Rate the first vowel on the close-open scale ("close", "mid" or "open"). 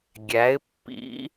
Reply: open